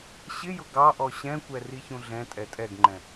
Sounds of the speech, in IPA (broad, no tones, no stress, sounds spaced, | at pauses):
ɕ ɪ j ʊ ɡ ɑ ʔ ɔ ɕ ɛ̃ kʷ ɛ r i ç ũ ɮ ɛ̃ tʼ ɛ tʼ ɛ ɡ ŋ͡ǃ ɛ̃